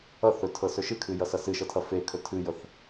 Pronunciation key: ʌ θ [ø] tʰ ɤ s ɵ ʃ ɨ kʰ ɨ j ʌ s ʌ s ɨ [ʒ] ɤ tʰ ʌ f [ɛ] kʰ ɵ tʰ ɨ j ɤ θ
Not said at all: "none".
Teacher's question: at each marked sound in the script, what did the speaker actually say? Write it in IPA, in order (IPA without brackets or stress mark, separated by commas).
ɵ, ʃ, e